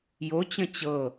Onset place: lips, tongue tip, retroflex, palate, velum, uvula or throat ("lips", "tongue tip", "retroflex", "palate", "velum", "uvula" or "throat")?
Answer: palate